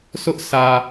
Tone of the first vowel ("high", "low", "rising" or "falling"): high